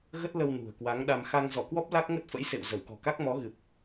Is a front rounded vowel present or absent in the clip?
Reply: absent